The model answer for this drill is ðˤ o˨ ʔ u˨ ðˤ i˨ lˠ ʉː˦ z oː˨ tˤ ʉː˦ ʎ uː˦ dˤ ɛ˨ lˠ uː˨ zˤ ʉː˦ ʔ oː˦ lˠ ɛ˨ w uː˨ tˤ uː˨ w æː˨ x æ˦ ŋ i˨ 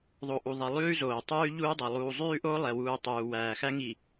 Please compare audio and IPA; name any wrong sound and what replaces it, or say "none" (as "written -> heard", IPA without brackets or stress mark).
none